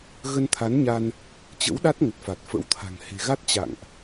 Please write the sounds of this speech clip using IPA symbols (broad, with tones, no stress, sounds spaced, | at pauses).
ɣ ə˧ n t̪ʰ a˨˦ n ɲ a˧ n | t͡ɕ ə̰˧˥ w ɗ a˦˥ t̚ ŋ ə˨˩ t̚ f a˨˩ t̚ f ə̰˧˥ w t̪ʰ a̤˨˩ ŋ h e̤˨˩ ɣ a˦˥ t̚ t͡ɕ a̰˧˨ ŋ ʔ